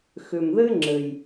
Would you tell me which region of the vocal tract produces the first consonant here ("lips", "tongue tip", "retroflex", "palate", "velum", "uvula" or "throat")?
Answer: velum